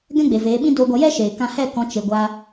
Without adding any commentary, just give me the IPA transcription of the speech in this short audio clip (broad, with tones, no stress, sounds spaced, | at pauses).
ɡ ɛ̃˦ ɡ͡b e˨ v eː˨˦ ɓ ĩ˦ d oː˧ ɡʷ a˧ j ɛ˦ ʃ eː˨ k ã˧ h ɛ˦˨ k ɔ̃˨˦ t͡ʃ e˧ ɡʷ a˦